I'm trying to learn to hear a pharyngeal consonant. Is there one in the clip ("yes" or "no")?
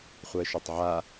yes